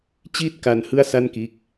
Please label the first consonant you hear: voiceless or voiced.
voiceless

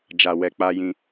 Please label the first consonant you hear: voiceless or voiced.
voiced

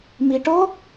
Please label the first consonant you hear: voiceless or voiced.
voiced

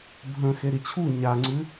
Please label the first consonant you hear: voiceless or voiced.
voiced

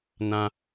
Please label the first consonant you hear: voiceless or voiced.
voiced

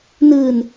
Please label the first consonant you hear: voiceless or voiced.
voiced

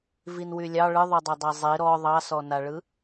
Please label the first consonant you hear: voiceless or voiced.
voiced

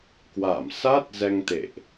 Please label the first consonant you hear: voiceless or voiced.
voiceless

